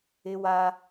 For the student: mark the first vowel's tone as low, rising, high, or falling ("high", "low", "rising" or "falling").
high